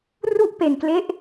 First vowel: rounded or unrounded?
rounded